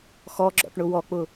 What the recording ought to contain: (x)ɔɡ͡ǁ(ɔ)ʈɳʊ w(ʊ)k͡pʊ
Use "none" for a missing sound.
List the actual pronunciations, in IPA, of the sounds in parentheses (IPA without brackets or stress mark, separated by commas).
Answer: x, ɔ̰, ɔ